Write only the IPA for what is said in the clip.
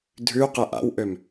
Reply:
dʱ ʉ q ɛ ʔ a̰ w ʔ ø m

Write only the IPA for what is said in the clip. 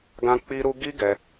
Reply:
ɡ ã˦ k͡p i˦ ɾ u˦ ɡ i˦ ɡ ɛ˧

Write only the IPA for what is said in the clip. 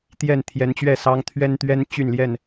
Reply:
t̪ j ɛ˥˨ n t̪ʰ j ɛ˨˦ n t͡ɕ ɥ ɛ˥˨ s ɑ˦ ŋ t̪ʰ ɥ ɛ˦ n t̪ ɥ ɛ˦ n t͡ɕ y˥˨ n l j ɛ˥˨ n

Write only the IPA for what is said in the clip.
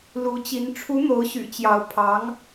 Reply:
l u˧˥ t͡ɕ i˧˥ n ʈ͡ʂʰ u˧˥ n̪ o˧˥ ʊ̯ ɕ y̰˨˩ t͡ɕ j ɑ˧˥ ʊ̯ pʰ ɑ˧˥ ŋ

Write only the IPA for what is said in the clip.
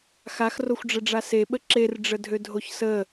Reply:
x a x r o xʷ ɖ͡ʐ ə ɖ͡ʐ a s e ɓ ə ǁ e r ɖ͡ʐ ə dʱ ø dʱ o ç s ə

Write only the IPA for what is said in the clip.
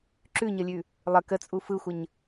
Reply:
ǁ ʉ ɲ ʌ lʲ ʉ | lˠ ə k ə t͡sʼ u f ɯ xʷ ə ɲ

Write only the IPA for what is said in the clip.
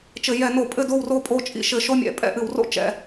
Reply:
t͡ʃ ɘ˧˩˧ j ɛ˧˩˧ n o˧˩˧ pʼ ɘ˥˧ d o˥˧ w r o˥˧ pʼ o˥˧ t͡ʃʼ ḭ˥˧ ʃ ɘ˧˩˧ ʃ o˥˧ mʲ ɛ̰˧˩˧ pʼ ɛ̰˧˩˧ ʔ ɨ˧˩˧ w r o̰˥˧ t͡ʃ ɛ̰˧˩˧

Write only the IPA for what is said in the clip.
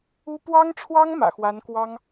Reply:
u˥ p w ɑ˥ ŋ ʈ͡ʂʰ w ɑ˥ ŋ m ä̰˨˩ x w a˧˥ n k w ɑ˥ ŋ

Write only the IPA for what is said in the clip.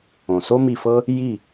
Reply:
õ˨˩ s o˥ m i˦˨ f ɤ˥ | j i˦˨

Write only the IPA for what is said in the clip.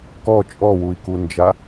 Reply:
k ɔ t͡ʃʼ ɔ w u i̯ k u n d͡ʒ a

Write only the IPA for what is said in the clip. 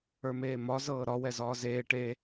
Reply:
ə˞ m eː m ɒ z ɤː ɾ ɒ w ɛ z ɒː z eː ʈ e

